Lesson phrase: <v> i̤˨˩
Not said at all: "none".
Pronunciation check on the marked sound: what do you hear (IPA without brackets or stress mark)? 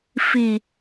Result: f